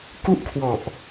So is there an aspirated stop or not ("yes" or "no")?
yes